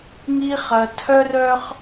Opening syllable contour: high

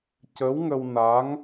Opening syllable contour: rising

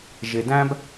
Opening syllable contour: low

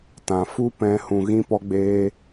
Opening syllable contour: low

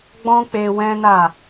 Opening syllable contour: high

